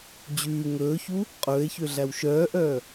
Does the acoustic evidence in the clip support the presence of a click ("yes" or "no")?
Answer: no